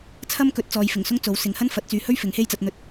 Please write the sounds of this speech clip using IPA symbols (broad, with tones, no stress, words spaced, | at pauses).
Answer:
t͡sʰɐ˥mkɵ˨˥t̚ t͡sɔː˨jfɪ˨˩ŋsʊ˥ŋ t͡so˨˥wsɪ˨˧ŋ hɐ˥nfɐ˨˥t̚t͡syː˨˧hɵ˥ɥ fɪ˨˥ŋhe˥jt͡sɐ˧t̚n̪ɵ˧t̚